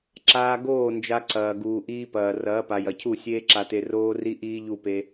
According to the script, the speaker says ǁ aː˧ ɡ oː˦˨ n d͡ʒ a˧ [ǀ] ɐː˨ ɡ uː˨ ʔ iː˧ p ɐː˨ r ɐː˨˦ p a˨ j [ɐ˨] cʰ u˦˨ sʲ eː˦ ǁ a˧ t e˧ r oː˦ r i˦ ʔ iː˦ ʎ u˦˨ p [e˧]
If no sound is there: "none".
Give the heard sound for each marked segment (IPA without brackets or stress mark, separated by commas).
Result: ǀ, ɐ˨, e˧